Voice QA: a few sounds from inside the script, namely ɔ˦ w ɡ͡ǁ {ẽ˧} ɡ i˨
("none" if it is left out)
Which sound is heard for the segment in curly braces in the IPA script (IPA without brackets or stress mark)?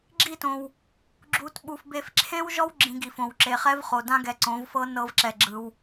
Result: ĩ˧